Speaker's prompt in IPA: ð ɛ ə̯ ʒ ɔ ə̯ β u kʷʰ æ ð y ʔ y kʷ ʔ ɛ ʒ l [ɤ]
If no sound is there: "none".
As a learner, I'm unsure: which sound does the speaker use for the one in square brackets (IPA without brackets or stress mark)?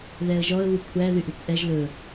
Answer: ɵ